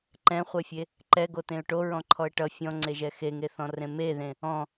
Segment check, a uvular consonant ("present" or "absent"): present